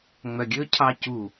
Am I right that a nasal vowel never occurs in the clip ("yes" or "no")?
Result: yes